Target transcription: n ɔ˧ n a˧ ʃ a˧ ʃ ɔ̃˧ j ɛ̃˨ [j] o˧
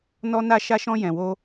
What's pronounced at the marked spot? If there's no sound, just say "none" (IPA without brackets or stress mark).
w